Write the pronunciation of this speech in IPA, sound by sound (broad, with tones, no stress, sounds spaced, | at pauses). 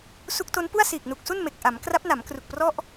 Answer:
s u˦˥ k̚ t o˦˥ n p u˥˩ a̯ s iː˨˩ k̚ n u˨˩ k̚ s u˥˩ n m e˨˩ k̚ ʔ a˩˦ m k r a˦˥ p̚ n a˩˦ m k r u˨˩ k̚ p r ɔ˥˩ ʔ